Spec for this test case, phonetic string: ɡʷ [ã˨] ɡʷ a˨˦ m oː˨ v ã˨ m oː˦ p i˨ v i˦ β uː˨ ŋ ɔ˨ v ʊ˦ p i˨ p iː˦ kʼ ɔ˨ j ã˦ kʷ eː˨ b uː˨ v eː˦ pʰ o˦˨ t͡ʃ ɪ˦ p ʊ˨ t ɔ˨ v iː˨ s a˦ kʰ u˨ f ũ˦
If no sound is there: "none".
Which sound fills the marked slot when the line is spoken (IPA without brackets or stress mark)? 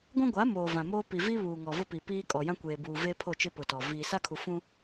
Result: ã˦